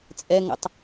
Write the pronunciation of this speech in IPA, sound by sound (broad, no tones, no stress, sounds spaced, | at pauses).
t͡sʼ ɛ ŋ ə̰ tˤ